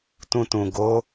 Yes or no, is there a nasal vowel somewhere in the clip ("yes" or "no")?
yes